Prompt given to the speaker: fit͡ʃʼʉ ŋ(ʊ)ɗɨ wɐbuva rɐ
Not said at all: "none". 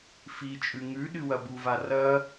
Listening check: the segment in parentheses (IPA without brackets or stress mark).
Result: ʉ